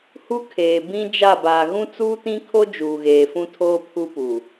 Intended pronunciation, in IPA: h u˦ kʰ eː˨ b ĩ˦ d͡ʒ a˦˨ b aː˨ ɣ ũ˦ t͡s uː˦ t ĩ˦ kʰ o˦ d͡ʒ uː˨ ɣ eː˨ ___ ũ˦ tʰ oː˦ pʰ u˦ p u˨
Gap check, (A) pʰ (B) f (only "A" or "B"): B